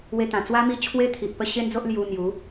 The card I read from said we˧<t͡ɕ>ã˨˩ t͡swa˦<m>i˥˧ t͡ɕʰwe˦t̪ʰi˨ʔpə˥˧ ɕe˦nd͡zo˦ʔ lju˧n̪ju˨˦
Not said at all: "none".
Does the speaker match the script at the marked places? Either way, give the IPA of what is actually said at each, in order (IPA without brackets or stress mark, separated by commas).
t̪, m